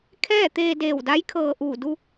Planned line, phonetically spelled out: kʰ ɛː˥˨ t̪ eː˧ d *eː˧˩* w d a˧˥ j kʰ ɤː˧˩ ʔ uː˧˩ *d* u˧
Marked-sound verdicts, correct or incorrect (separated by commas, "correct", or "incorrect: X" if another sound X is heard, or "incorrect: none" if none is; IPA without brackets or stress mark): correct, correct